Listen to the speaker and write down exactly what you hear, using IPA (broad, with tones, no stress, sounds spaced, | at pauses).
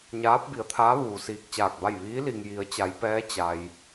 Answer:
ɲ aː˧˥ p̚ b i˩˧ ə̯ t̪ʰ aː˧˥ ʋ uː˩ s iː˧ k̚ t͡ɕ aː˧˩ k̚ b a˥˨ j ʋ iː˧˥ l i˩ ŋ j i˩˧ ə̯ t͡ɕ a˩˧ j p ɛː˧˥ t͡ɕ a˩ j